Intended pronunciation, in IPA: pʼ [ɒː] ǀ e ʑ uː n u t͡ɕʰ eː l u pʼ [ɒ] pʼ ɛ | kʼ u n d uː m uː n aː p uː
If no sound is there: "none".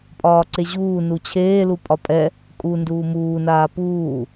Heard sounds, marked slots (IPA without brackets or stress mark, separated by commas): ɒː, ɒ